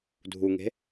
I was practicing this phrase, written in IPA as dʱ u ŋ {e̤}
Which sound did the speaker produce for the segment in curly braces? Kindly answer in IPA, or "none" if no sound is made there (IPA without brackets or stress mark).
e̤